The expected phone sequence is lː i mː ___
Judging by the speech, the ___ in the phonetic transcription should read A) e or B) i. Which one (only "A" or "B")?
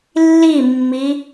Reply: B